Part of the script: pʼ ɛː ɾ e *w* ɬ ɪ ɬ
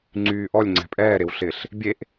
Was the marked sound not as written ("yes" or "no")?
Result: no